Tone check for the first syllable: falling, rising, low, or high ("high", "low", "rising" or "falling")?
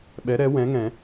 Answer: rising